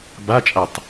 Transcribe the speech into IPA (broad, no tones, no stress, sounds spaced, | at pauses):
b a t͡ʃʼ a tˤ